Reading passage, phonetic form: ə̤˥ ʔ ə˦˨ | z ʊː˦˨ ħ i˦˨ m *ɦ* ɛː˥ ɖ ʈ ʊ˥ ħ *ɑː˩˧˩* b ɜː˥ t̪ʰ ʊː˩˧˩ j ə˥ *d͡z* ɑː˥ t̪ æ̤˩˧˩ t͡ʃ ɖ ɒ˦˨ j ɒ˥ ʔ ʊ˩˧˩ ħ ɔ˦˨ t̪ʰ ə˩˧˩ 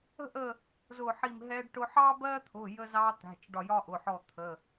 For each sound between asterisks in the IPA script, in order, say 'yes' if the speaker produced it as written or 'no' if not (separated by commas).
yes, no, no